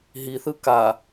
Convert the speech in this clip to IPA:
ɦiθɯ ka

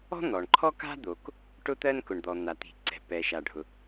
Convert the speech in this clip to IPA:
ɔ̤˥ n̪ɔ˩ɳǃʰɔ˥ka̤˥d̪o˩k | ʈʊ˥t̪ɜ˥n kʊ˩ɳd̪ɔ˩ n̪a˩t̪i̤˩ǀɛ̤˩ pɛ˩ʃa˩ɖʱʊ˩

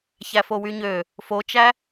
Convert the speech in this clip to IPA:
çæfowyɲø | fot͡ʃæ

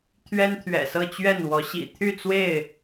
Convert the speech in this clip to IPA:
t̪ʰɥɛ˦nt̪ʰɥɛ̰˨˩sɤ˥˨t͡ɕɥɛ˥˨n wɔ˨˦ɕḭ˨˩ t̪ʰy˥˨t͡swe˥˨ɪ̯

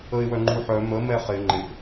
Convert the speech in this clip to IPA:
əɪ̯wœŋ͡ǃuħœ mə mɛχɪ ŋ͡ǃɪʔ

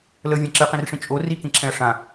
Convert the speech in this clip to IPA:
ləvʲɛ̃ ǁɨqĩrʂĩ t͡ʃʼo rikĩǁʰɛ̃ɐ̯ ʂã

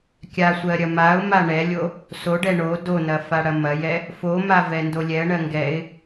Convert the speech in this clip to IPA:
kʲasʷɜ ɾʲɐmaʊ̯ma ɳɛlʲo | soɖɛ ɳo donɐ faɽɐmɐjɛ | foma vɛndolʲɛə̯ɳɜ ŋɡɛɪ̯

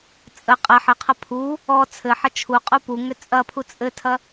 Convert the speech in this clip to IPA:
t͡sʼə qʼɐ ħəqʰɐ pʰu | ɔ t͡sʰɘħɐ t͡ʃʰuqʼu puŋʏ t͡sʼɐpʰu t͡sʼɘtʰɐ

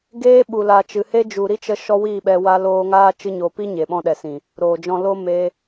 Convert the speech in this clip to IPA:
ɡeː˦ ɓu˨la˨t͡ʃɨ˨ he˦ d͡ʒu˨ ɾi˦t͡ʃə˧ ʃɔ˦wiː˦˨ɓɛ˧ wa˧loː˧ŋaː˦ t͡ʃɨ˧ɲoː˨pi˦ ɲe˨ɓɔ̃˧ɗɛ˨sĩ˨ | ɾoː˨d͡ʒɔ̃˧ lo˧ me˦

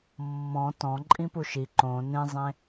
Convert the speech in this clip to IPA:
mːɔ̃ tɔ̃ ǃʼĩpuʃi ǃõ nẽzˤẽ

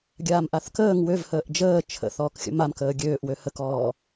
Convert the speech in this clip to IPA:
ɡʲaːmʔaθkəːŋ wøvhəːʔ d͡ʒəː t͡ʃʰə̰ θɔːkxʲə̰mam kəːɡʲøːʔwø həkɔː

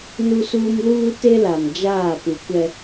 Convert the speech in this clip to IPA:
nu˦suː˦m luː˦ te˦la˨m d͡ʒaː˦˨pu˨kʷɛ˦

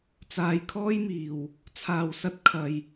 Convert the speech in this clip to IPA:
t͡saː˧jkʰɔː˥jmiː˨w | t͡sʰaː˨wsɐ˧t̚ kʰɐ˧j

